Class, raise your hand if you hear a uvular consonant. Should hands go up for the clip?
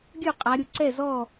yes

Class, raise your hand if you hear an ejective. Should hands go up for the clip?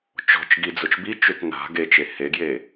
no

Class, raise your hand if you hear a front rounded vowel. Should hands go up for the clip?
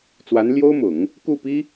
no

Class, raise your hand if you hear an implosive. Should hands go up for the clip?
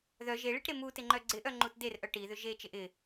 no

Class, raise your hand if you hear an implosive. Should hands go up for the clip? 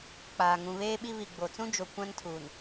yes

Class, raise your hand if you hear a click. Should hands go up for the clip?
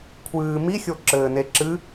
yes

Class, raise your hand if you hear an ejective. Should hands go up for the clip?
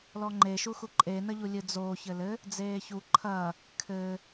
yes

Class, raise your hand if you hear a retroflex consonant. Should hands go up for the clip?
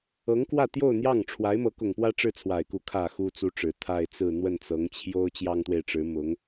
yes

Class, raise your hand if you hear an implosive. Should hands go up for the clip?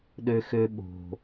yes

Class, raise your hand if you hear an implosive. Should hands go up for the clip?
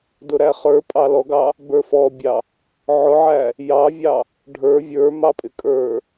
no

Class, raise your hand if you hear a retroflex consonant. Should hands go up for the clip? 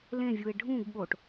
yes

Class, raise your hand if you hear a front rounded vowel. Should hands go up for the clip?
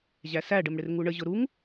no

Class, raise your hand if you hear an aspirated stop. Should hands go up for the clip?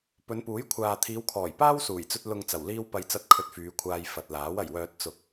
yes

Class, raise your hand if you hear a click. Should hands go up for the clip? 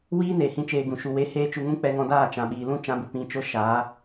no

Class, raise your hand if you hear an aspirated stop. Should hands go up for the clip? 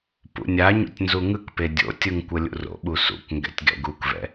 no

